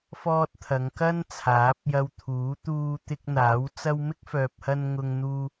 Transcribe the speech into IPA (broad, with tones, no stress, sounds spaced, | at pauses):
f ɔː˥ t̚ t̪ʰ ɐ˨˧ ŋ k ɐ˥ n t͡sʰ aː˨˥ p̚ j ɐ˧ w t̪ʰ uː˨˥ t̪ uː˧ t̪ ɪ˧ k̚ n̪ aː˨˥ w t͡s ɐ˥ w m ɪ˥ k̚ f œː˨ p̚ h ɐ˧ n ŋ ʊ˧ ŋ n̪ uː˧